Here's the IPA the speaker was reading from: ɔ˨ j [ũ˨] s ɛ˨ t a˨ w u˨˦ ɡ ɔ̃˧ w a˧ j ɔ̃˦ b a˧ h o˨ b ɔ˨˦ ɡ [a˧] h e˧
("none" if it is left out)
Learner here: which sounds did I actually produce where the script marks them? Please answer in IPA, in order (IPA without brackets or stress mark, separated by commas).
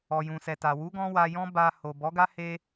ũ˨, a˦